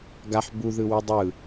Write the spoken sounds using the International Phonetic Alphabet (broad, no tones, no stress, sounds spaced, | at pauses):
ɡ a ħ b u ð ɯ w u dˤ ɯ